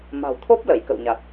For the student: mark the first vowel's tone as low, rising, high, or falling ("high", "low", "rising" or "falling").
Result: low